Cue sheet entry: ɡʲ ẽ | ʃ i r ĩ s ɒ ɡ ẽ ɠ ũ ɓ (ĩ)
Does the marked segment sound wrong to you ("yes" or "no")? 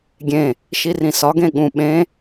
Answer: yes